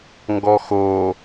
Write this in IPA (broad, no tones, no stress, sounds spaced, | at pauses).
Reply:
ŋ ɡ ɔ x o